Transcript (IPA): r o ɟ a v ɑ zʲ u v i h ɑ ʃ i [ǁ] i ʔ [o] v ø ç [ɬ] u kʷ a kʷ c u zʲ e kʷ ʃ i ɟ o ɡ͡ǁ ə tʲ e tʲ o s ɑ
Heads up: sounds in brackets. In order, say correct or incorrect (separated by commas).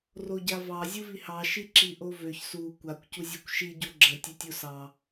correct, correct, incorrect